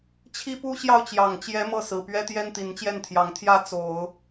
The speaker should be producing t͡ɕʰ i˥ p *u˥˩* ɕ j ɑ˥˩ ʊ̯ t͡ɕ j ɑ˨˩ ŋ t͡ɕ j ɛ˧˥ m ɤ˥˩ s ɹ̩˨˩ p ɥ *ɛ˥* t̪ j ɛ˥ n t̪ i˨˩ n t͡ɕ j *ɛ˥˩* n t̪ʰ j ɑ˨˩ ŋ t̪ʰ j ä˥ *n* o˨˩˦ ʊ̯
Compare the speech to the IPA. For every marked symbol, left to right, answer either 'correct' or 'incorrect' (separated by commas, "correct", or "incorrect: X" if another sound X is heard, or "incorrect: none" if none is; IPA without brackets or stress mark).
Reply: incorrect: u˥, correct, correct, incorrect: t͡s